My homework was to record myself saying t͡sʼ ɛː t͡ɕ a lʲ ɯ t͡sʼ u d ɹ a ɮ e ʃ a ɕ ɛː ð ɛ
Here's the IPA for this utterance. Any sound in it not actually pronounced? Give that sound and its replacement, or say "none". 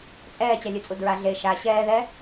none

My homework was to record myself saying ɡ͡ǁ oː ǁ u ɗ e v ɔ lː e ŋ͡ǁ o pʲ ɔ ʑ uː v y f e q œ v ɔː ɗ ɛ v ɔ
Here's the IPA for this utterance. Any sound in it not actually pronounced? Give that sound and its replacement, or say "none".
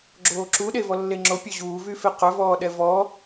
none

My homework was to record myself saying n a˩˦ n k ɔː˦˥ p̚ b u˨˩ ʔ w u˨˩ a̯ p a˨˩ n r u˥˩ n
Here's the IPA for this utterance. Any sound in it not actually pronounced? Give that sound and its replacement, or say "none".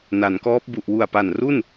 none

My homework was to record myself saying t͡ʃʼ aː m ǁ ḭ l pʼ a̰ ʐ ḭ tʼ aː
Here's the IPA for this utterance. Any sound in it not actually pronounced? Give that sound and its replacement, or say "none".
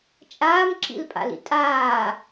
ʐ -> l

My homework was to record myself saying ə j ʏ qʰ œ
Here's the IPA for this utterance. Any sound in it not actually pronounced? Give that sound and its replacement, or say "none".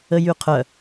ʏ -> y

